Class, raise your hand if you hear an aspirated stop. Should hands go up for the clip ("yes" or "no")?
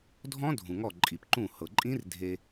no